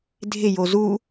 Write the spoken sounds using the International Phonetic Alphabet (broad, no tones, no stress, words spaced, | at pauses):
dʱɪjo zu